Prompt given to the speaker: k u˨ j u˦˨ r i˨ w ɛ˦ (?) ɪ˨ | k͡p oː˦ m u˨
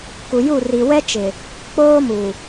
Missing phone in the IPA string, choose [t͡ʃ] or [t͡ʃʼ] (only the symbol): t͡ʃ